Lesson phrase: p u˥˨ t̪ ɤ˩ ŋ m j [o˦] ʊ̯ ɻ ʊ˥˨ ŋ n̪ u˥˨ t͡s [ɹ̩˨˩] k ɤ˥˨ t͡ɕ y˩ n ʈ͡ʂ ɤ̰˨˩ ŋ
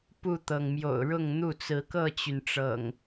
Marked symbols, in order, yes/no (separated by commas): no, no